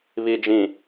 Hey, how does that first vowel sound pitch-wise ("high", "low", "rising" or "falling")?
low